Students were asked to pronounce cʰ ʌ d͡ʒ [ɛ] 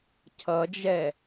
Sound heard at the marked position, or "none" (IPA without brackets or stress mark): ɛ